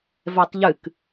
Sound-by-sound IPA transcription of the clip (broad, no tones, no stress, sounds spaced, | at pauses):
v ɛ tˤ ʎ ɨ k